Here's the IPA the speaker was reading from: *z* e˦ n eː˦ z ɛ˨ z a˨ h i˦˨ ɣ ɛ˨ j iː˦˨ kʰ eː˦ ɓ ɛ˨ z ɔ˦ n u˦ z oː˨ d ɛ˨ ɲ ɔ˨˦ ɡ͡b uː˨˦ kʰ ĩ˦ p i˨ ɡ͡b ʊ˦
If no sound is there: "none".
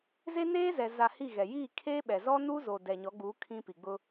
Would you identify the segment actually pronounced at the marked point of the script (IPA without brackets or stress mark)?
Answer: z